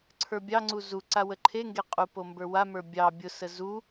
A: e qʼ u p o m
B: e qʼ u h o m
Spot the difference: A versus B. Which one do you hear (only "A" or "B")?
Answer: A